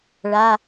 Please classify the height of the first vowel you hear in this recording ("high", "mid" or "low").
low